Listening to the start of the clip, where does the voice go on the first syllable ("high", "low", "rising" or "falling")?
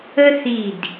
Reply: high